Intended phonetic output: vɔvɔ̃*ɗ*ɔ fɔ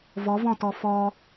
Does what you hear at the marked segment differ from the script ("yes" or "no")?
yes